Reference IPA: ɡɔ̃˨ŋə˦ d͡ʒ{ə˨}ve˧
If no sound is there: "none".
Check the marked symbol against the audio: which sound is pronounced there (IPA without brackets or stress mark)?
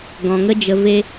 ə˨